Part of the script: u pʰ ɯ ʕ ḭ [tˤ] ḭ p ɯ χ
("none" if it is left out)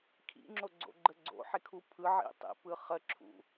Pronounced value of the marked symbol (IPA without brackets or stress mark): tˤ